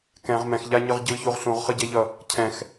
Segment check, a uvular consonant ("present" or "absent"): present